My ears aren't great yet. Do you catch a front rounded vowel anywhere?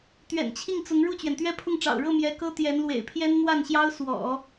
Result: no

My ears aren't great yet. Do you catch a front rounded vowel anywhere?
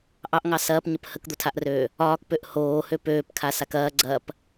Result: yes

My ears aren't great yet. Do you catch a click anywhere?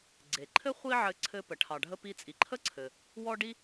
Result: yes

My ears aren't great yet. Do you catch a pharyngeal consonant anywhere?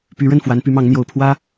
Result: no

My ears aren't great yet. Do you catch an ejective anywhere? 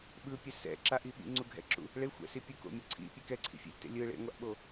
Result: no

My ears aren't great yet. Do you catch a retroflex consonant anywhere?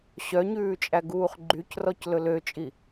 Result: no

